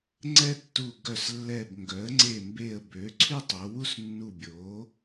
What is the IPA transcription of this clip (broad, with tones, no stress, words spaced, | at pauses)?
ŋ͡ǀɛ˥ tːu˧˩ɡœ˧˩slːɛ˧˩b ŋɡœ˩˥ə̯ŋ͡ǀe˧˩mbe˧˩ə̯ bø˩˥ǀʰy˥tˤo˩˧wu˥s nːu˧˩bʲo˩˥